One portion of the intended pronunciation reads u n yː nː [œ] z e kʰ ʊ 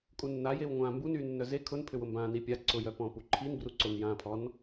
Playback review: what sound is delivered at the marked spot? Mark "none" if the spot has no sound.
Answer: œ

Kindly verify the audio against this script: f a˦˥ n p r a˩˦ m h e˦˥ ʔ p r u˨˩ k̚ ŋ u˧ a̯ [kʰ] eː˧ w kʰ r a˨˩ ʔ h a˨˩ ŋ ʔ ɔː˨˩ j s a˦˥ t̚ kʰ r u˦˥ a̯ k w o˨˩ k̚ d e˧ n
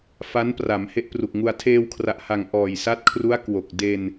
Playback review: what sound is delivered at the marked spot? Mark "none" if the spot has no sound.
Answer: tʰ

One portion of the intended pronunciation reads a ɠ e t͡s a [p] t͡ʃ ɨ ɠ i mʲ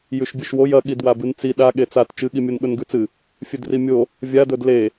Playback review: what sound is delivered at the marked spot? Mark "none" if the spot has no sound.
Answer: t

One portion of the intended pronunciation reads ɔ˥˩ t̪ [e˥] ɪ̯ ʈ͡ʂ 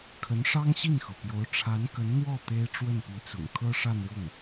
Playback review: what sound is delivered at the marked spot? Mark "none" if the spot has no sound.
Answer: e˥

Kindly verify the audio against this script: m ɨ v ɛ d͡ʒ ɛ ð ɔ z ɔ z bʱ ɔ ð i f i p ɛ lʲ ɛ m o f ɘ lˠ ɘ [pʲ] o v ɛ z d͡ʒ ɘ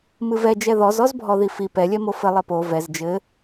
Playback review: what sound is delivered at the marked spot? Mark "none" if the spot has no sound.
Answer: p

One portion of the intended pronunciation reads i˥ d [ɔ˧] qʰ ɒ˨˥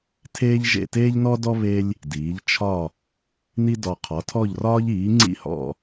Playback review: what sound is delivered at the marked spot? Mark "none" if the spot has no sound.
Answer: ɔ˧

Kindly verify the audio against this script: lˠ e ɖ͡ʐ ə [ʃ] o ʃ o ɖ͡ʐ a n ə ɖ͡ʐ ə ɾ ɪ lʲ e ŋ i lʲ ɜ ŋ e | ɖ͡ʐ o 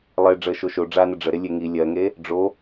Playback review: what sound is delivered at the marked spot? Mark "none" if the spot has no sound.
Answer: ʃ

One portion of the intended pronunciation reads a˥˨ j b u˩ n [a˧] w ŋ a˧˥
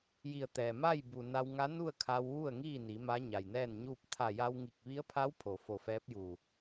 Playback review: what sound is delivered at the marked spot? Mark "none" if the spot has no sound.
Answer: a˧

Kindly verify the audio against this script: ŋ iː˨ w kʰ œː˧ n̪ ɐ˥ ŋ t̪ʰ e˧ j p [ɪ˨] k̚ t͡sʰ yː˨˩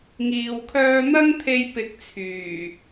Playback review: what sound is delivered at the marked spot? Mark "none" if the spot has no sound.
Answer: ɪ˧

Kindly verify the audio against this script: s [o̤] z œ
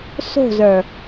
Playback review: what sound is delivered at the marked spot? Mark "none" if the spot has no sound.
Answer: o̤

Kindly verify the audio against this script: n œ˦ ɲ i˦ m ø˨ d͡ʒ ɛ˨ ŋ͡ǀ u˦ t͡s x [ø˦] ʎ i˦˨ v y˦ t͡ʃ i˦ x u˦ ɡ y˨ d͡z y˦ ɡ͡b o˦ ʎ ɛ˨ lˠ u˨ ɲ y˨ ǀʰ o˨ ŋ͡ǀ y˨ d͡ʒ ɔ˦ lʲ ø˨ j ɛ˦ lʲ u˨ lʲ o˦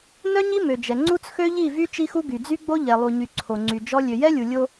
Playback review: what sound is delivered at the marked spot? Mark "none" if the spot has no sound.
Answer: ø˦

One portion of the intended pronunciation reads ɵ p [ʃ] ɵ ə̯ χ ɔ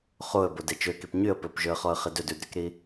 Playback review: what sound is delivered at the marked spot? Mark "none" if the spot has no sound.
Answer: ʒ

